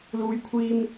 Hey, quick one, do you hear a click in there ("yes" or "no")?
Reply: no